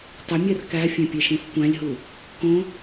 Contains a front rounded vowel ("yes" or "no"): yes